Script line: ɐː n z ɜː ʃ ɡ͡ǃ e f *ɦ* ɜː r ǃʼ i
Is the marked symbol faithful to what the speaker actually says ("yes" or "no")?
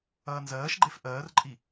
no